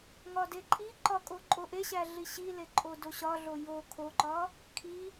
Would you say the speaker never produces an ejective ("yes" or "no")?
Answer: no